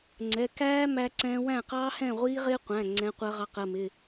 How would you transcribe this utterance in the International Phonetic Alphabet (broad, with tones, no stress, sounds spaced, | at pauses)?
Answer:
ŋ͡ǀ ɛ˩˧˩ k æː˦˥ m æ˦˥ ǀ ɛ̃ː˦˥ w æ̃˥˩ q ɑː˦˥ h ɛ̃ː˥˩ ʁʷ iː˦˥ ʁ ɪː˦˥ qʷ æ̃˩˧˩ ŋ͡ǀ ɛ̃ː˨˥ qʷ ɜ˨˥ ʁ ɑ˨˥ q ɜ˩˧˩ m ɪ˩˧˩